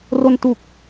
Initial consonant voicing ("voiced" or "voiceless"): voiced